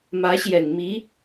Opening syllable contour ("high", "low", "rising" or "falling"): rising